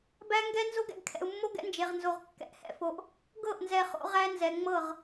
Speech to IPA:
b æ˦ ŋ ɡ ɛ˦ n z o˦ ɡ ɛ̰˨ ɡ kʰ ɛ̰˨ u̯ mː o˦ ɡ ɛ̰˦ n d͡ʒ e˨ ʁ n z o˨ ʁ kː ɛ̰˨ ʔ h ɛ̰˨ f o˨ ʔ | ɡ ɤ˦˨ ʔ n z ɛ˨ χ o̰˦ ʁ æ˦ n z ɛ˨ ŋ͡m ɤ˦˨ ʁ

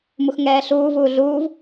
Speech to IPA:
m u x ŋ ɛː ɬ uː v uː ɮ uː v

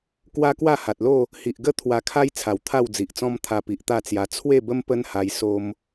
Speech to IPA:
k w a˦ k w a˥˧ h a˨ t̚ l o˥˧ | h i˨ ʔ ɡ ə˥˧ t̪ʰ w a˧ kʰ a˦ j t͡sʰ a˨˩ w t̪ʰ a˥˧ w d͡z i˨ ʔ t͡s ɔ̃˦ m t̪ʰ a˧ p i˨ ʔ t̪ a˥˧ t͡s j a˧ t͡sʰ w e˥˧ b ə˦ m p ə˦ n h a˧ j s o˧ m

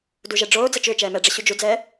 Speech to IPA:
d u ʒ ɛ ɖ͡ʐ oː d͡z ə t͡ʃ ʏː t͡ʃ ɛː m ɛ ɖ͡ʐ ə ɕ u d͡ʒ u d͡z ɛː

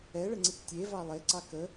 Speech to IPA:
ɛ ɭ ə ŋ͡ǀ i k tʲ e v ɑ lˠ e ǀ ɑ k ə

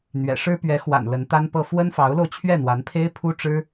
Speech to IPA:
n̪ ɥ ɛ̰˨˩ ʂ ɻ̩˥ p ɥ ɛ˧˥ x w a̰˨˩ n l ə˧˥ n t̪ a˥ n p ɤ˥˩ f w ə˥ n f ɑ˧˥ ʊ̯ l o˧ ʊ̯ t͡ɕʰ ɥ ɛ˥˩ n̪ w a˧˥ n pʰ e˥ ɪ̯ pʰ u˥ ʈ͡ʂ ɻ̩˥

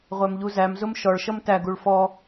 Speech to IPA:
ʁʷ æ m ʎ u z æ m z ʊ m ʃ ɔ ɭ ʃ ʌ m t æ ɡ u ɭ f ɔ

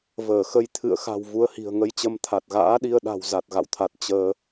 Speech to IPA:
v əː˧˩ x ə˧ j t̪ʰ ɨ̰˧˨ ə̯ x a̤˨˩ w v u˨˦ ə̯ h i̤˨˩ ə̯ ŋ ə˧ j t͡ɕ ə˧ m t̪ʰ a˨˩ t̚ ɣ a̰ː˧˥ ɗ i˧ ə̯ ɗ a̤˨˩ w z a˨˩ t̚ ɣ a̰˧˨ w t̪ʰ a˨˩ t̚ t͡ɕ əː˧

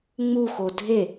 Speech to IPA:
ŋ͡m u x o dʱ e

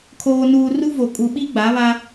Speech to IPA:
kʰ oː˨ n uː˨ r u˦ v o˨ kʼ u˨ ɓ i˦ ɡ͡b a˨˦ β a˦

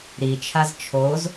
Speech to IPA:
ɾ i t͡ʃʰ a z t͡ʃʰ o z

